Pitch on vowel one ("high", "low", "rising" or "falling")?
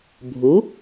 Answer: rising